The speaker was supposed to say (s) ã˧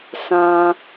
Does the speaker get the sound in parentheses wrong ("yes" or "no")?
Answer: no